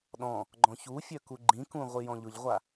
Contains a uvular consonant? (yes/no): yes